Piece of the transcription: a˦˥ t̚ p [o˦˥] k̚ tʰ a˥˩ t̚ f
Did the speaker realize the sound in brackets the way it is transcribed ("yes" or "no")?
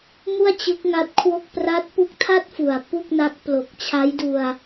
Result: no